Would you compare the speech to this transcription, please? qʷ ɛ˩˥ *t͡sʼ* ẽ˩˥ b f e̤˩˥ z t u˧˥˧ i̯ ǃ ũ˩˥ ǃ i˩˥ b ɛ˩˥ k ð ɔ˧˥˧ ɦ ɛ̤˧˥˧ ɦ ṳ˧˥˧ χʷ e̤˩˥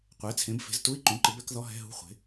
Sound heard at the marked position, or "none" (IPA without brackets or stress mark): t͡sʰ